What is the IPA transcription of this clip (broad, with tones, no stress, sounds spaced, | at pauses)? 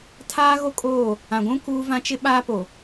tʰ aː˦ ɣ o˦ kʼ oː˦˨ | ã˨ ɡʷ ũ˦ k uː˦ v ã˦ t͡ʃ ɪ˦ ɓ aː˦ p o˨